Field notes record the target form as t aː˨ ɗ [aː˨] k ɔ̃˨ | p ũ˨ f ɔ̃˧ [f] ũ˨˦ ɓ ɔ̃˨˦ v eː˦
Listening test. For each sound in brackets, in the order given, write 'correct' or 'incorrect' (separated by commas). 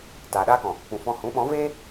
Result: incorrect, incorrect